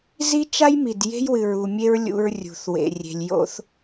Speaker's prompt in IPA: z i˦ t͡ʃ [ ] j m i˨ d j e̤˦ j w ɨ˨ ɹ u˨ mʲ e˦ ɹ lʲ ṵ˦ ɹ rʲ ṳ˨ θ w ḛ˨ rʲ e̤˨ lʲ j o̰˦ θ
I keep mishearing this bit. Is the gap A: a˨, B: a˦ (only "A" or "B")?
B